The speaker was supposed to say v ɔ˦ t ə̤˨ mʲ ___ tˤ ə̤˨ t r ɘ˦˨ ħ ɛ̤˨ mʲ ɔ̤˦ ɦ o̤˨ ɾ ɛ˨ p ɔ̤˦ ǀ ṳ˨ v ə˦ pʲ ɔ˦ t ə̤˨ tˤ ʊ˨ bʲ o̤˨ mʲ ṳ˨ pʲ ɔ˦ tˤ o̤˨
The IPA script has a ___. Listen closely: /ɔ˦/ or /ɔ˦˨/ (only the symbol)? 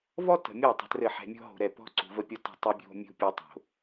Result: ɔ˦˨